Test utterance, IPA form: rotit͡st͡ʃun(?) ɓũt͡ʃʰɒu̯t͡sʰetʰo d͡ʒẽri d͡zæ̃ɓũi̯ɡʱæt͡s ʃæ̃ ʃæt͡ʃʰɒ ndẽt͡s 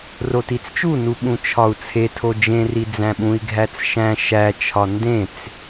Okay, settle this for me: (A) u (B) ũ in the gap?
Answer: A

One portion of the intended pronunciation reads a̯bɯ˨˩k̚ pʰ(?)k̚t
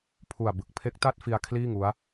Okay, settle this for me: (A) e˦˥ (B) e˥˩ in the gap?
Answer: A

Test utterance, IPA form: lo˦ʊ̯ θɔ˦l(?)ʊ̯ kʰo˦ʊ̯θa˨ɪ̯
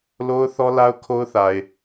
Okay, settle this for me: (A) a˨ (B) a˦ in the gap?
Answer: B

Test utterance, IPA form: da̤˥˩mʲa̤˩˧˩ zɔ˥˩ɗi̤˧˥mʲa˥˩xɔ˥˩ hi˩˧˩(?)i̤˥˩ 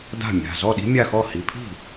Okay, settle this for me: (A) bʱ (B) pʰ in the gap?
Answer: B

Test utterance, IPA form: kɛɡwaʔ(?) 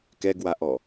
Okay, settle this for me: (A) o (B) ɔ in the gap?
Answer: B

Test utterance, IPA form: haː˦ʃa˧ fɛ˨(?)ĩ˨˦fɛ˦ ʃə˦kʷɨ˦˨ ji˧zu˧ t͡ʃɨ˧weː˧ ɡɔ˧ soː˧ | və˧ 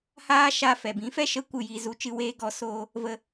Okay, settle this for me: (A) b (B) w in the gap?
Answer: A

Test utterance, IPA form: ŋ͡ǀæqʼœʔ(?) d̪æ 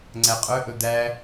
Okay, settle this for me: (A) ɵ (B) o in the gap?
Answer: A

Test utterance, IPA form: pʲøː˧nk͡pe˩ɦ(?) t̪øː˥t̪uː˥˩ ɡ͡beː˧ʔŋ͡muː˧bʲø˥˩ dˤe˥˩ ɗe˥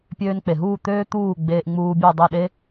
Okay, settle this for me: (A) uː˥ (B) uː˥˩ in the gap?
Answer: B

